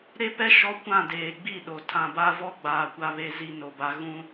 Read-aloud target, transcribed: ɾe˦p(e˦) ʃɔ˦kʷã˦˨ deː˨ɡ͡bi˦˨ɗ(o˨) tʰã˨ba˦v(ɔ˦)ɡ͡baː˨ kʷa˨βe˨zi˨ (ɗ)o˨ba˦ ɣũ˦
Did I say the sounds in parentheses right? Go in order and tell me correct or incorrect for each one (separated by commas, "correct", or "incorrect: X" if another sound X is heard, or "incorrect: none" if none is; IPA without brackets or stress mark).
incorrect: ɛ˦, correct, correct, incorrect: n